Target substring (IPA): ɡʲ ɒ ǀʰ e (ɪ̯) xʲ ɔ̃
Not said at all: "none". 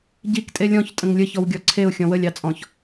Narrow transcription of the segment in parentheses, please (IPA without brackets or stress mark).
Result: ʊ̯